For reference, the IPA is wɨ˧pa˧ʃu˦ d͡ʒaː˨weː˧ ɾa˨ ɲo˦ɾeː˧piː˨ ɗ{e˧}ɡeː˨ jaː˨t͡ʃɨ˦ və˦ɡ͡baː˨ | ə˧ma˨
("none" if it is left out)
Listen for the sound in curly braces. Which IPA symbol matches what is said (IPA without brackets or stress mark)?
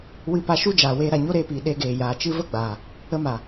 e˧